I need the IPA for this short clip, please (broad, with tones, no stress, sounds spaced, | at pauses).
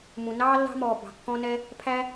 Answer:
m ũ˩ n ɑː˥ lː ɑ̤˦ m ɔː˩ b ɑ̤˩ kː ɔ̃˦ n ɛ˦ | pʰ æ˥